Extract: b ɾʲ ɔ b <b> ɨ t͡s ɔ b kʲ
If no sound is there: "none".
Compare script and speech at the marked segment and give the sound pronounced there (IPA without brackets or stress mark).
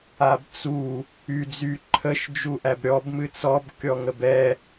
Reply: m